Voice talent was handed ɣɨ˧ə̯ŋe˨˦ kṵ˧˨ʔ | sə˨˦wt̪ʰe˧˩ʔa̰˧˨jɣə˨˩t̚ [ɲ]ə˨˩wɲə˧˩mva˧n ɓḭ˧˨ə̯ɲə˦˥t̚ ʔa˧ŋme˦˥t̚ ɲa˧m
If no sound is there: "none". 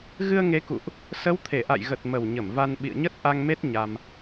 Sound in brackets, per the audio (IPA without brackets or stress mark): m